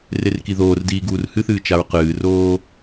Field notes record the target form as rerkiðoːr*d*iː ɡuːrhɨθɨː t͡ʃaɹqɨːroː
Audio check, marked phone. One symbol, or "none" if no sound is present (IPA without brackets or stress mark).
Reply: d